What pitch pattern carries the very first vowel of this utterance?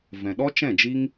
low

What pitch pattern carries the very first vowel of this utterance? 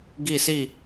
falling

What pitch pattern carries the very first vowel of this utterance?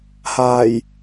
low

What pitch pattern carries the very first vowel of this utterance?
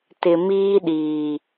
low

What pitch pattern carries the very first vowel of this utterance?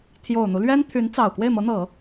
low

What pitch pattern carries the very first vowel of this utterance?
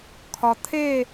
low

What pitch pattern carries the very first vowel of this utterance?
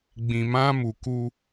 low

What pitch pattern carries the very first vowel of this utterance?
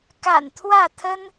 low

